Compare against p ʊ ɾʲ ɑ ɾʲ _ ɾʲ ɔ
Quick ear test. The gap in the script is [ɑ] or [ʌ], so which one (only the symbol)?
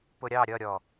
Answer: ʌ